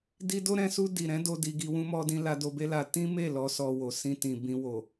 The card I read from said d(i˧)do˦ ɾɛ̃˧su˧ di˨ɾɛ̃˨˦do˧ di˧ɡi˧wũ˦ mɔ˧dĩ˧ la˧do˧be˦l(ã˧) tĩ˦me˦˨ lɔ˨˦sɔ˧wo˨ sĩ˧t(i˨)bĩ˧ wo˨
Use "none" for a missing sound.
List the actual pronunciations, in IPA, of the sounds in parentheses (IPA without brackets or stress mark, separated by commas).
i˧, a˧, ĩ˨